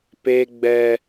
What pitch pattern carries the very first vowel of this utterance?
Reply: high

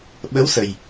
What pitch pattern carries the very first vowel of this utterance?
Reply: rising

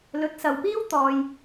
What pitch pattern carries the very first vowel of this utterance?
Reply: rising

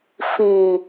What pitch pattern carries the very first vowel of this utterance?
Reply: low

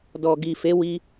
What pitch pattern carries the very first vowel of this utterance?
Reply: low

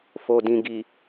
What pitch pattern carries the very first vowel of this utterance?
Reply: low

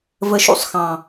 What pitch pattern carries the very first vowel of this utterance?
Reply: low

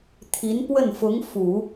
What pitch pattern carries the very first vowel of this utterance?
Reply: rising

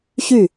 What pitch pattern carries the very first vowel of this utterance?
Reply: falling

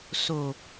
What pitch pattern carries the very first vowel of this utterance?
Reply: low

